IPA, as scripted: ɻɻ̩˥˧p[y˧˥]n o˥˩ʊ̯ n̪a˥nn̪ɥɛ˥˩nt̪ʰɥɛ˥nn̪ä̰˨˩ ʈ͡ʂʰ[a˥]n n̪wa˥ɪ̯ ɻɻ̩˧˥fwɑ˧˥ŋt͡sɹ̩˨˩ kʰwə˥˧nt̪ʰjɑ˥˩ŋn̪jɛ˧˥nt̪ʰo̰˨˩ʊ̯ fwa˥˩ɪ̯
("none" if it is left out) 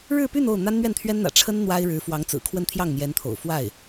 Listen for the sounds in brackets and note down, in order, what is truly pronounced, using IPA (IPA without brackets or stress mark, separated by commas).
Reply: y˥˧, ə˥